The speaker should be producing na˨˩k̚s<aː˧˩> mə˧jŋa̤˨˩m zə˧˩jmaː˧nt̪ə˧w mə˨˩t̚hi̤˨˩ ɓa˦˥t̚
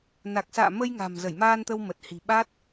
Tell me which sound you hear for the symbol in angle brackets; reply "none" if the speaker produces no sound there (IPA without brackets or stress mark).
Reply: a̰ː˧˨